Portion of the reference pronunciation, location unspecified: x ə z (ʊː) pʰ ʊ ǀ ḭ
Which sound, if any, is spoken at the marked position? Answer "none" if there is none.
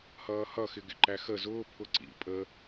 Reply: ʊː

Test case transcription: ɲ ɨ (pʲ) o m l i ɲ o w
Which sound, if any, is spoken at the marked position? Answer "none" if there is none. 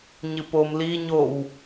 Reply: p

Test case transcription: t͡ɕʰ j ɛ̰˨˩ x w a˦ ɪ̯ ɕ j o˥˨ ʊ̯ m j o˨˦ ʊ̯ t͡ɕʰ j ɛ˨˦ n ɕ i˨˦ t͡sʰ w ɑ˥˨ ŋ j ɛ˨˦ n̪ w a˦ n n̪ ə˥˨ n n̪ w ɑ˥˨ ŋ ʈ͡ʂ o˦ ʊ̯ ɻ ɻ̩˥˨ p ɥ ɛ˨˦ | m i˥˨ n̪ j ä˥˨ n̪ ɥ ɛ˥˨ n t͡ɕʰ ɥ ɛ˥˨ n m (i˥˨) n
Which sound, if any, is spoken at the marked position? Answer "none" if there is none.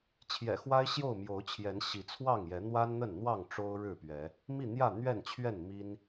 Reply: i˦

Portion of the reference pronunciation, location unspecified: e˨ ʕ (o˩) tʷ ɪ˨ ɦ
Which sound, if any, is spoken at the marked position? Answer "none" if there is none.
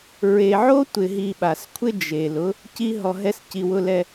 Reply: o˥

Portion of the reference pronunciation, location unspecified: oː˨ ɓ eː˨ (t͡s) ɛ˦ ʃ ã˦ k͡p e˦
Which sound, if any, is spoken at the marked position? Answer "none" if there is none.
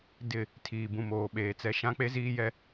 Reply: t͡s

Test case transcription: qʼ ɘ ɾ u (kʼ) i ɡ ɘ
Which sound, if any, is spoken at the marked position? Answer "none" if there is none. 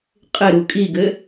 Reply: kʼ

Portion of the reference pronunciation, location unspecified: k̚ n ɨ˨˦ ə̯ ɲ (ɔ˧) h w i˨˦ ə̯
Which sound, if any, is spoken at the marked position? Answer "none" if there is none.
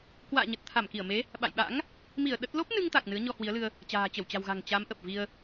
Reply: ɔ˧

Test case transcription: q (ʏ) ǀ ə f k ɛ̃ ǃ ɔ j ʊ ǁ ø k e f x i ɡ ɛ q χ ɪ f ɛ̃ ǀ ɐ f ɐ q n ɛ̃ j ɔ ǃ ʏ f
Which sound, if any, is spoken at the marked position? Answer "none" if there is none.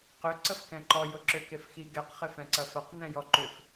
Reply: ʏ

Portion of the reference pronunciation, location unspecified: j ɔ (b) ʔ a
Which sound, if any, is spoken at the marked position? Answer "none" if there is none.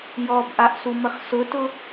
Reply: b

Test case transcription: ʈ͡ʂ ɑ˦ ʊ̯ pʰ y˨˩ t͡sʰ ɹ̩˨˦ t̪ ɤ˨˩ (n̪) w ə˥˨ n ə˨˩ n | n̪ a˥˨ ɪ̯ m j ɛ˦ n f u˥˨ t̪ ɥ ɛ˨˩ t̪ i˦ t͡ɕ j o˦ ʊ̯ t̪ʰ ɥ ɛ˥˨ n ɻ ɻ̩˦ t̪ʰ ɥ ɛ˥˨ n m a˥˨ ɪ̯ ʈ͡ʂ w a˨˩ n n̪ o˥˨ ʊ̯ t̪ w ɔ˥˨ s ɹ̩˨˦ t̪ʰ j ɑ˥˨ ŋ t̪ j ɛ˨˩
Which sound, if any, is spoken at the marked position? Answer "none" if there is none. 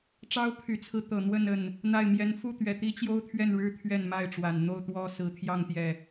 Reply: n̪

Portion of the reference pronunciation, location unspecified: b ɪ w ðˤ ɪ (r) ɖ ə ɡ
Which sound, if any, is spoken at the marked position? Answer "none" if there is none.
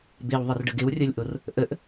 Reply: r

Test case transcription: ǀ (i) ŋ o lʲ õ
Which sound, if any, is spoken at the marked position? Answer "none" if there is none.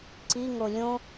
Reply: i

